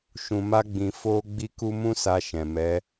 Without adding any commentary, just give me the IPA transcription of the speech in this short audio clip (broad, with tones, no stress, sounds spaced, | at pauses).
ʃ ũ˧ m a˦ ɡ͡b ĩ˧ f o˦ ɡ͡b i˦ k u˦ m ũ˦ s a˧ ʃ ɛ̃˨ m ɛ˨˦